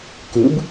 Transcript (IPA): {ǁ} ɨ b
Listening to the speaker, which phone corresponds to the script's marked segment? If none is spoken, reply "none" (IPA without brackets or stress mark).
k